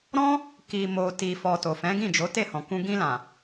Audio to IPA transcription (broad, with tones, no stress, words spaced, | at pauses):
ɾɔ̃˦ | ki˨mo˨ ti˨fɔ˨ to˨fɛ̃˨˦ɡĩ˦˨d͡ʒo˨˦ te˦˨hɔ̃˨kũ˧ ɡĩ˧lã˨